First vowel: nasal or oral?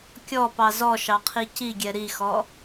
oral